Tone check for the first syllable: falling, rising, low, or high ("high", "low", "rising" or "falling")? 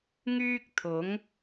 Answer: high